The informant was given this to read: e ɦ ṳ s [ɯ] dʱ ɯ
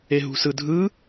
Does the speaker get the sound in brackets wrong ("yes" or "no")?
no